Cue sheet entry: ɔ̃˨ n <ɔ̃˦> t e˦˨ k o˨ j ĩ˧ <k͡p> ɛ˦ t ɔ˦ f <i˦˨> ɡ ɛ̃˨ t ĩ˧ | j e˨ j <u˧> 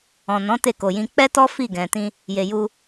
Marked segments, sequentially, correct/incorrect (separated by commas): incorrect, correct, correct, correct